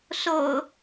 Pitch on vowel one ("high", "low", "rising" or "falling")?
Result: low